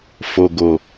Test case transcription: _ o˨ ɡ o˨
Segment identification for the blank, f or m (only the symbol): f